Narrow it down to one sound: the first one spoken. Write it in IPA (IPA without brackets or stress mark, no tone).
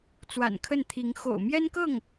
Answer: t͡s